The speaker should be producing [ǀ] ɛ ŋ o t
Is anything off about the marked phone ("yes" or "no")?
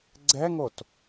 yes